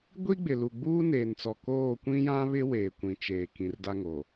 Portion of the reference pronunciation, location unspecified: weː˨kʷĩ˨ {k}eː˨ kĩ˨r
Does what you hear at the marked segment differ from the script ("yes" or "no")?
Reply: yes